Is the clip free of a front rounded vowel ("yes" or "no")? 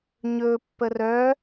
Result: no